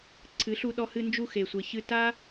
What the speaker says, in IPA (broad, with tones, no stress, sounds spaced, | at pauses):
ǀʰ ɨ˨˦ ɬ u˧ ɗ ɔ˧ h ɨ˧ n d͡ʒ u˧ x e˨ sʷ e˨ ç ɨ˧ t a˦